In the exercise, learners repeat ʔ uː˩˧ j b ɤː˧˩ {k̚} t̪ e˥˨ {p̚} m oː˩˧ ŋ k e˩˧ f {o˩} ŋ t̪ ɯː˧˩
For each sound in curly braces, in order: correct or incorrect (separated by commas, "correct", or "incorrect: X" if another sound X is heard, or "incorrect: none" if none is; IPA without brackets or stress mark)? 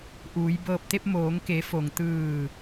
incorrect: p̚, correct, correct